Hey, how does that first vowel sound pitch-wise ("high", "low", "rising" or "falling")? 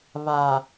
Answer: low